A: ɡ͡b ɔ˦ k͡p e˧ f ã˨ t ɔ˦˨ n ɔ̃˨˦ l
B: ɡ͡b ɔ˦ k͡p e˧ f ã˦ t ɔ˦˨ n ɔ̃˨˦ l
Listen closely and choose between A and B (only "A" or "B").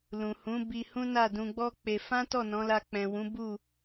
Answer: B